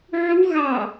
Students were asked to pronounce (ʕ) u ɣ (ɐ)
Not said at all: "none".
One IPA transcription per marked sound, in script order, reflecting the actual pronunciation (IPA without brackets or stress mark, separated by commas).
ʕ, ɑ